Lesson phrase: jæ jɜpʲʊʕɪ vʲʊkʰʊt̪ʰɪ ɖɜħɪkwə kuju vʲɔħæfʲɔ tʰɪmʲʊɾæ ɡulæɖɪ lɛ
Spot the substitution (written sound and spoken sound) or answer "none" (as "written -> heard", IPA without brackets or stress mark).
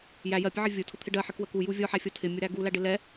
kʰ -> tʰ